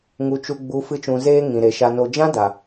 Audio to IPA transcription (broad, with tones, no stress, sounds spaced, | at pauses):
ŋ u˨ t͡ʃ u˨ ɡ͡b u˨˦ f ɨ˧ t͡ʃ ũ˨ z eː˧ ŋ ĩ˨ ɾ e˨ ʃ a˨ n o˨ d͡ʒ ã˦ d a˨